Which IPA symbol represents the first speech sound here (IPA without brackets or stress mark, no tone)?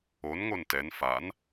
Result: o